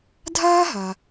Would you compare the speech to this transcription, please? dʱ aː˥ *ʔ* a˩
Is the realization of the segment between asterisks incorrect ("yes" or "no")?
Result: yes